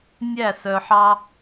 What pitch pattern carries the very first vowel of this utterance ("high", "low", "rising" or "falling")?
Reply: falling